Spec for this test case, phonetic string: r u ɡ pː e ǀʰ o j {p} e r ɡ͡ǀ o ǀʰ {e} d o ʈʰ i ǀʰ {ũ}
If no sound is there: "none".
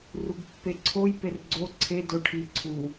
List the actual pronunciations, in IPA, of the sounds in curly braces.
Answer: p, e, u

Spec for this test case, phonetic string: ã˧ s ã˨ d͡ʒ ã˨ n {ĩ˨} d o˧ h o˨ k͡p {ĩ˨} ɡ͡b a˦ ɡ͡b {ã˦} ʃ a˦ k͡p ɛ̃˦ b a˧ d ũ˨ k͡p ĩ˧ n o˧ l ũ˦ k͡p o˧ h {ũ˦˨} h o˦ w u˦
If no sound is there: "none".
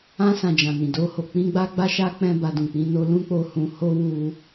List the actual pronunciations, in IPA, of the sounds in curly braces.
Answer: ĩ˨, ĩ˧, a˦, ũ˧

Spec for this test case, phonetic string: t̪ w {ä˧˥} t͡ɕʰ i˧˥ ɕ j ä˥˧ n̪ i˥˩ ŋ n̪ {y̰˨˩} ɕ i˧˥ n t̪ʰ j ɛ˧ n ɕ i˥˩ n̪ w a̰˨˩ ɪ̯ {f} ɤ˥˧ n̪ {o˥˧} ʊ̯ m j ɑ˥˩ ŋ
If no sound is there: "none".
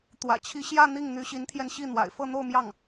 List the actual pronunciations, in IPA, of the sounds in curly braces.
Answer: ä̰˨˩, y˧˥, f, o˥˧

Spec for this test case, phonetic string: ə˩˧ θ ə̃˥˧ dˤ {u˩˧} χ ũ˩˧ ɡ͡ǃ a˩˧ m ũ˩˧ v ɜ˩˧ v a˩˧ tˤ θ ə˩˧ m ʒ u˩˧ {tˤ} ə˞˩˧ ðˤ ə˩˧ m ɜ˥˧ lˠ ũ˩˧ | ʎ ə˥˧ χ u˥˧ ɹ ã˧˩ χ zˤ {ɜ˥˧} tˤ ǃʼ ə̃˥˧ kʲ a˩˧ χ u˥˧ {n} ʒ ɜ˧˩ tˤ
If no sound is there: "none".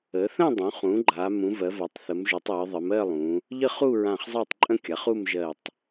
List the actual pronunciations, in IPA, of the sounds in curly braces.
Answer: ũ˩˧, tˤ, ɜ˥˧, m

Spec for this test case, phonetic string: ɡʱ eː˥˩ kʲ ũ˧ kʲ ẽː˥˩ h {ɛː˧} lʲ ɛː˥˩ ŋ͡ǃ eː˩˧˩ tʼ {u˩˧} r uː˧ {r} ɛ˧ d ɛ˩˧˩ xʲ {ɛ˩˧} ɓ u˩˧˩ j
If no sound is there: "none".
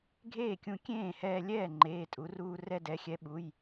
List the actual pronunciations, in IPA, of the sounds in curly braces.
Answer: ɛː˧, u˩˧, r, ɛ˨˥

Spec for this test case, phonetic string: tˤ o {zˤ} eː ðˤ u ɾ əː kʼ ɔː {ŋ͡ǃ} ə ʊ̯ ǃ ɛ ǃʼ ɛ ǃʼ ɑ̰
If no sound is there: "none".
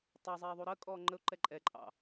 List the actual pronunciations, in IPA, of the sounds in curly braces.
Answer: zˤ, ŋ͡ǃ

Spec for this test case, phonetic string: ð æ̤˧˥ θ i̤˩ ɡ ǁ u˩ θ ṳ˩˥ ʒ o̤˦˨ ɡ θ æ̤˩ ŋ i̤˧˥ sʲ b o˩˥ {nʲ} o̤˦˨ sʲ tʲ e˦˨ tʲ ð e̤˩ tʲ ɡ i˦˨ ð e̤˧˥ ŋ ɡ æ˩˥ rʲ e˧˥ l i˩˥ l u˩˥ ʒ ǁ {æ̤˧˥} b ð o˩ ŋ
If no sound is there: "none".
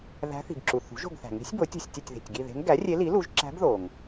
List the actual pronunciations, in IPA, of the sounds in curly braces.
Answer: tʲ, æ̤˧˥

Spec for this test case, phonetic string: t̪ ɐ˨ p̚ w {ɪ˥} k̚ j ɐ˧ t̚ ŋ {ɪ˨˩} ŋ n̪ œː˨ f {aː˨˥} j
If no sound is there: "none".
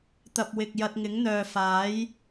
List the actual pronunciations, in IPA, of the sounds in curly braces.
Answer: ɪ˨, ɪ˨˥, aː˨˥

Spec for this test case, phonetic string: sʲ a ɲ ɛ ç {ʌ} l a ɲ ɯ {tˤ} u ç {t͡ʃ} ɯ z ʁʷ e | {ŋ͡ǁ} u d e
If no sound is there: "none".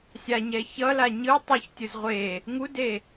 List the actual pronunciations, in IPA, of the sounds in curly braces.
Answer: ʌ, tˤ, tʲ, ŋ

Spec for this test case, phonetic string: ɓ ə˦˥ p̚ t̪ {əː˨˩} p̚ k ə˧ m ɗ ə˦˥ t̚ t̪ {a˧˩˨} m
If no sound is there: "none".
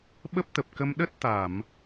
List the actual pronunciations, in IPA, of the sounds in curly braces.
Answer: ə˨˩, a˧˩˨

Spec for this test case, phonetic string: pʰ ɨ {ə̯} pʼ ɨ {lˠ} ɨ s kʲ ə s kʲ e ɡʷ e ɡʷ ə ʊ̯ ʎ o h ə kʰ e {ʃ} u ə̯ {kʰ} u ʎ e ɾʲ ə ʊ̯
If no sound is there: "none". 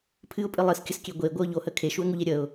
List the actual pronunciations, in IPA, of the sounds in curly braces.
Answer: ʊ̯, lˠ, ʃ, ŋ

